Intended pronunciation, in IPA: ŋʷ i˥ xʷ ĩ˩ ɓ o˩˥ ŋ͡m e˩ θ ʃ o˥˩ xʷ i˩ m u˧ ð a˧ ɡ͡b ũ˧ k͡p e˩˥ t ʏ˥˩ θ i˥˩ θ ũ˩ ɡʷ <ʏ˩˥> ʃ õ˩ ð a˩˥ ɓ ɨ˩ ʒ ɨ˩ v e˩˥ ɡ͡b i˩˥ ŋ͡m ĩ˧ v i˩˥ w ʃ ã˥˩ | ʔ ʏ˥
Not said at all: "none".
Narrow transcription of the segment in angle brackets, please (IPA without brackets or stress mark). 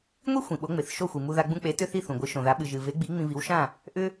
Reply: ɨ˩˥